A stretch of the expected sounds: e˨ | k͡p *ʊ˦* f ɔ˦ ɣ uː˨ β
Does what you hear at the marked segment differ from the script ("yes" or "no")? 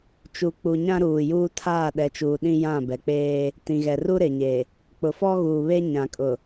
yes